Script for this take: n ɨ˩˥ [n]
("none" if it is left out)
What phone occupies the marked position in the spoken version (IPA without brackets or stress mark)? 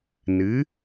none